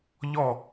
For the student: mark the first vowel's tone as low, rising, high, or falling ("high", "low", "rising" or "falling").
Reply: falling